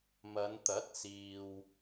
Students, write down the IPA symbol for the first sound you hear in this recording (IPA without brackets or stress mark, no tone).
m